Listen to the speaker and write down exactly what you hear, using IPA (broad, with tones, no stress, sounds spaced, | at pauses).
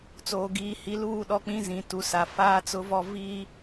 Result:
t͡s oː˨ ɡ iː˨ h i˨˦ l uː˦˨ ɗ ɔ˦ k͡p ĩ˦ z ĩ˨ t u˨ s a˨ f aː˦ t͡s ʊ˦ v ɔ˦ v iː˦